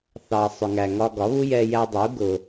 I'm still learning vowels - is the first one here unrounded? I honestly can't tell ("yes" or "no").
yes